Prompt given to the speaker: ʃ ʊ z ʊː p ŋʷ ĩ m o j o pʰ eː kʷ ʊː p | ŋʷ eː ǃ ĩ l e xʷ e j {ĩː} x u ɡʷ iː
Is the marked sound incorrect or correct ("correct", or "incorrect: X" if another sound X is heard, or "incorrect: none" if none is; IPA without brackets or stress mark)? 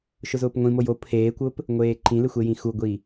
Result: incorrect: ĩ